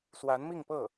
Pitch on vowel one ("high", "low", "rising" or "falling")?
rising